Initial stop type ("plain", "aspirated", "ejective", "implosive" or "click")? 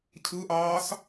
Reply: aspirated